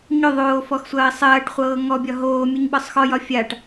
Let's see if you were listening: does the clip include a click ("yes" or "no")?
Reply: no